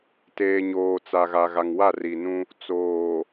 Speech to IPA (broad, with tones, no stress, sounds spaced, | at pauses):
t eː˨ ɲ oː˨ t͡s a˨ ɣ a˨ ɣ a˨ ŋ w a˦˨ r i˨ n ũ˦ | t͡s oː˨